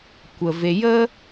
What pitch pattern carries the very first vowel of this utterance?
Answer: low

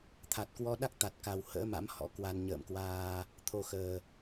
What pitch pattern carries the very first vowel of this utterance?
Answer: low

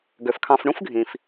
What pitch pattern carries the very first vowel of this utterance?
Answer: low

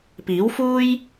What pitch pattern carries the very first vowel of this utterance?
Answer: rising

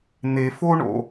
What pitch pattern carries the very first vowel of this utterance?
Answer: low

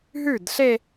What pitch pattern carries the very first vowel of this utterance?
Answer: falling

